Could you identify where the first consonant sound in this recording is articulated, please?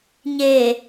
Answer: palatal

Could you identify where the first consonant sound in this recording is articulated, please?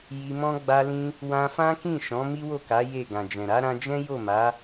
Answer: palatal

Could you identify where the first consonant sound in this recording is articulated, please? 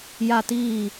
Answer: palatal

